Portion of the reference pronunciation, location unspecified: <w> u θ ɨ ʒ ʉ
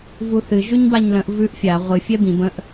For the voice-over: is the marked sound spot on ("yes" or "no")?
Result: no